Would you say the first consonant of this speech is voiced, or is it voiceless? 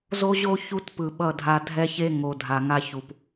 voiced